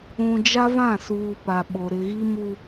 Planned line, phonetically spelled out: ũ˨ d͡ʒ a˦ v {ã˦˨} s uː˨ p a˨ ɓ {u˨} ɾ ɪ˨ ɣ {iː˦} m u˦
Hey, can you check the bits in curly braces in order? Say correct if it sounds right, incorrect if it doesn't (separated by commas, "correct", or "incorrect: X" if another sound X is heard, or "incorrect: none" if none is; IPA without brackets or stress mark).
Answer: correct, incorrect: o˨, incorrect: i˦